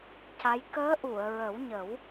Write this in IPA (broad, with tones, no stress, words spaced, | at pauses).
ca˧˥j kəː˧˥ʔu˨˩˨ə̯ɹə˨˩˦wɲə˨˩˦w